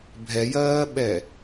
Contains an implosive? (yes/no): yes